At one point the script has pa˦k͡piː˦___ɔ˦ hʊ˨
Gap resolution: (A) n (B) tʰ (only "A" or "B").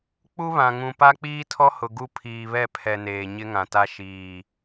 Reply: B